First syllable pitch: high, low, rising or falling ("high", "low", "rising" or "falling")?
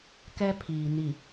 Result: high